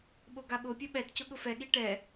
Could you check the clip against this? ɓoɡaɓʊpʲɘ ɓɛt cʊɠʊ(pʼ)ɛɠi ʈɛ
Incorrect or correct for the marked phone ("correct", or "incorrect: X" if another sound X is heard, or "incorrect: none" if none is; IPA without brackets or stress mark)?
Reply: incorrect: f